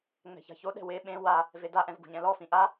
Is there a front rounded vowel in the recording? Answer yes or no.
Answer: no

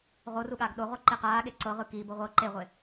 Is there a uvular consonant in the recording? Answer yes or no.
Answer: yes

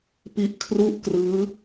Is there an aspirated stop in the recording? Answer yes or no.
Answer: yes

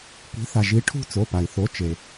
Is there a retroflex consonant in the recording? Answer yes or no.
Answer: yes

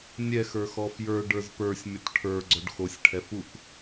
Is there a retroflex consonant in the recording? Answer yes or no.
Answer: yes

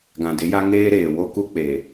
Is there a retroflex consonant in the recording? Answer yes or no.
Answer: no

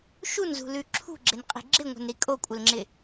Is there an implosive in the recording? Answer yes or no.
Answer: no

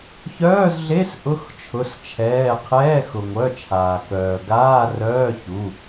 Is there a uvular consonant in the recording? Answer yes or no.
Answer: yes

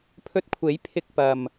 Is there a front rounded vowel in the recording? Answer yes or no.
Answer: no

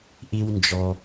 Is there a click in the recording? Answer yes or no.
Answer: no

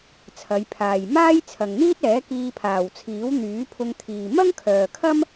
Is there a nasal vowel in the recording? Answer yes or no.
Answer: no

